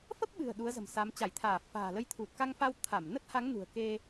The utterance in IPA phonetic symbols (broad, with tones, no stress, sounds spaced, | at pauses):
f ə˦˥ p̚ ɓ ɨ̤˨˩ ə̯ ɗ u˨˦ ə̯ z ə̤˨˩ m s a˨˦ m t͡ɕ a˧˩ j t̪ʰ aː˧˩ f a̤ː˨˩ l ə˨˦ j t̪ʰ u˨˩ t̚ k a˧ ŋ f a˧ w t̪ʰ a˧˩ m n ə˦˥ t̚ h a˨˦ ŋ n ṳ˨˩ ə̯ k e˧